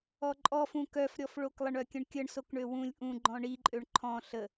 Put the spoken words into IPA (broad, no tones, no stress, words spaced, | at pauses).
ɔǃʼɔfũ kœfɾʲɔfɭok lˠəɳœkʲə̃ɳkʲəɳ sokɳøwũlʲ ʔũ ɡ͡ǃɔ̃ɳiǃʼøɳ ǃʰɔ̃ ɬə